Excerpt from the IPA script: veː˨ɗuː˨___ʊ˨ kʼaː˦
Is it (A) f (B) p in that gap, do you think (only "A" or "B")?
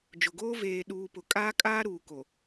B